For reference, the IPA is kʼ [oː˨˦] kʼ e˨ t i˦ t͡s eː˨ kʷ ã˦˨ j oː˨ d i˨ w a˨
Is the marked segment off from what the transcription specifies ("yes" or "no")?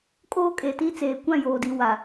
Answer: yes